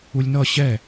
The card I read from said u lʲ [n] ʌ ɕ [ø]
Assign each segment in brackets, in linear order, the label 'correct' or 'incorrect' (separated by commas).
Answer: correct, incorrect